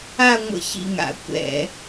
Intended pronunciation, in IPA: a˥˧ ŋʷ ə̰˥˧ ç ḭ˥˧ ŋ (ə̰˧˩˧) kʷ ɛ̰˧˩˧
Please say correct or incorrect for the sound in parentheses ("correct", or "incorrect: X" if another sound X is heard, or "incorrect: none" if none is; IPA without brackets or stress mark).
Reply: incorrect: a̰˧˩˧